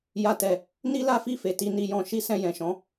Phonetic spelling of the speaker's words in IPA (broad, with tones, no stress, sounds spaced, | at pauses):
j a˦ t ɛ˧ | n i˦ l a˦ f i˦˨ f e˨ t i˧ n i˧ j ɔ̃˧ ʃ i˦ s ɛ̃˧ j ɛ̃˨ ʃ ɔ̃˨˦